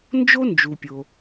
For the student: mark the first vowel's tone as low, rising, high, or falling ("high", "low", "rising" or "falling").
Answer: high